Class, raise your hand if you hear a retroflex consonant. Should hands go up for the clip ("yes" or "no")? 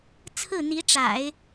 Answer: yes